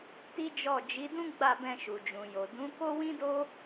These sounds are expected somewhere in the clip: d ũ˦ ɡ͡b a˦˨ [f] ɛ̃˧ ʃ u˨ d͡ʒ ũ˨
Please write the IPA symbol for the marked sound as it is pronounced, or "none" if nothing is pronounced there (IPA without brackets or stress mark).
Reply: b